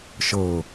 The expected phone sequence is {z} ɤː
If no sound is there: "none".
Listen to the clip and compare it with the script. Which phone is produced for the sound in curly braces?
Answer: ʃ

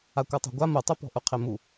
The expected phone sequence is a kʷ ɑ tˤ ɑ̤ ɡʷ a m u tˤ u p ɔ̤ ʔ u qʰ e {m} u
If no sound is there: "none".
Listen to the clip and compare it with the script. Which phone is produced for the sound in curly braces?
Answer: m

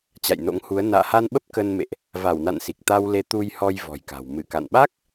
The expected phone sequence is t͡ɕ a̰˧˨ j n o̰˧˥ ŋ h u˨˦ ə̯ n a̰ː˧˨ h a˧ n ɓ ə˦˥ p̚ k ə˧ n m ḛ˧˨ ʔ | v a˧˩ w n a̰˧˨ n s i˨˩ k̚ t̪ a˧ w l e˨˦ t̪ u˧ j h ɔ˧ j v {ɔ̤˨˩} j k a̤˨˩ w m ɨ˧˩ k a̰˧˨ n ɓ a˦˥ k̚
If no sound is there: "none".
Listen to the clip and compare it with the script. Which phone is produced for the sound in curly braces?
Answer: ɔ̤˨˩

